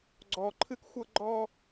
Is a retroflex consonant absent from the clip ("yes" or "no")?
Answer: yes